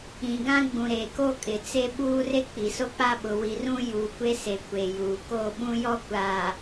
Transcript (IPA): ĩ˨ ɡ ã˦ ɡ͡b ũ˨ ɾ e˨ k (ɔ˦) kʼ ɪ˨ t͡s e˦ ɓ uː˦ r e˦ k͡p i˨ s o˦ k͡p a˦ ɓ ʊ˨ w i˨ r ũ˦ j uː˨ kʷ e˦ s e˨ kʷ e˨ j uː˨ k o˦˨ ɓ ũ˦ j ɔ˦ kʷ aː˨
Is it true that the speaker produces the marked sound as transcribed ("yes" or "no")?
no